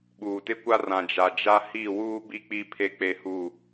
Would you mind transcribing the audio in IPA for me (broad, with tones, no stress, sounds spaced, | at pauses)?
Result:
ɓ uː˨ t ɪ˦ kʷ a˦ r ã˨ d͡ʒ a˨ d͡ʒ a˦ h i˦˨ w uː˦ b i˦ k͡p i˦ pʰ e˦ k͡p e˦ h u˦˨